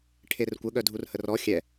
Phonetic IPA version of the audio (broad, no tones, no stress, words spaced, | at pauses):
ʈʰerkʷə ɠœdʱurhərɔ xʲɛ